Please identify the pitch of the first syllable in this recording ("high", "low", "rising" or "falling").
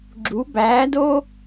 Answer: rising